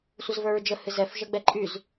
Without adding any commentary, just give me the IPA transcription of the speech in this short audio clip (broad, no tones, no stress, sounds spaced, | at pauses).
sʷ ə z v ə˞ ɹ d͡ʒ ə h ɨ z ɛ f ʒ ə ɡ͡b ɛ ǃʼ y z